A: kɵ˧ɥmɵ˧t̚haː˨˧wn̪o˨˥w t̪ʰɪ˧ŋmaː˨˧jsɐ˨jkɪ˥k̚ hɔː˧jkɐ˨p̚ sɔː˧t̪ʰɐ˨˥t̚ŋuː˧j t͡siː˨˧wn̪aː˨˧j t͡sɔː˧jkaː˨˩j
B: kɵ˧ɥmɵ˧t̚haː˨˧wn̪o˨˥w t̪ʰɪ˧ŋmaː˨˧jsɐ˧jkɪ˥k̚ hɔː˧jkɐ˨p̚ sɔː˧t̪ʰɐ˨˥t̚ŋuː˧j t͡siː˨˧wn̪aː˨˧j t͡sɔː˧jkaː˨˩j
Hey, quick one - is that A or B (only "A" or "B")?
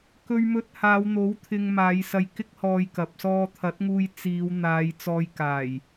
B